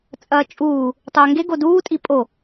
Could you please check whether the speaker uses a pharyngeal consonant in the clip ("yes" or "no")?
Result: no